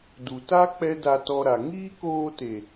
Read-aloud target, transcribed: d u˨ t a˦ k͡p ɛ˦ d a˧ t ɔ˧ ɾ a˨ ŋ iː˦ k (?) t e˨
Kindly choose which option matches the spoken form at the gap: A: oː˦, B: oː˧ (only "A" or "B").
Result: B